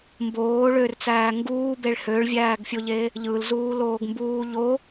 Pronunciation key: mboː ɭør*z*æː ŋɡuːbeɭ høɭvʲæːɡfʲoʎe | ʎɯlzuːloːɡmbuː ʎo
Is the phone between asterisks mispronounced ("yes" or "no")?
yes